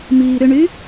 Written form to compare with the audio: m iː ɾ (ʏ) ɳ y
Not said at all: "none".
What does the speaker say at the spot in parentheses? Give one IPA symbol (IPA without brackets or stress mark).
ʏ